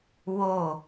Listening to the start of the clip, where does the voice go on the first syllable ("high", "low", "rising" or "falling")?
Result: falling